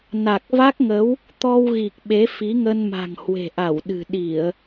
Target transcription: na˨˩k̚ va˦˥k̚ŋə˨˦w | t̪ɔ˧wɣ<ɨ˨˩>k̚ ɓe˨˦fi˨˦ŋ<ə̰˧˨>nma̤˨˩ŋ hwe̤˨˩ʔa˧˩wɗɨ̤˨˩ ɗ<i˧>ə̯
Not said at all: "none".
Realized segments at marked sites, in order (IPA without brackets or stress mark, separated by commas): i˨˩, ə˧, i˧˩˨